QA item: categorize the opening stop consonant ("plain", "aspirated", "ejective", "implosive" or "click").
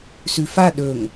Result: implosive